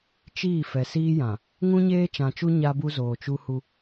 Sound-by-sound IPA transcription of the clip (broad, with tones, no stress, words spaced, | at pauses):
t͡ʃiː˦˨ fɛ˨siː˦jã˨ | ŋũ˦ɲeː˦t͡ʃã˨t͡ʃu˦ ɲa˦bu˦ zoː˨t͡ʃu˦hu˦